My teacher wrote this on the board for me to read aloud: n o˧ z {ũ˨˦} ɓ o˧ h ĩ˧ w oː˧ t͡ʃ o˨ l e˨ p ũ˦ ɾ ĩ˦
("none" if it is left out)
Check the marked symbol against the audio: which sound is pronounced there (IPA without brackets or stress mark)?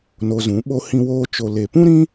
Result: ũ˨˦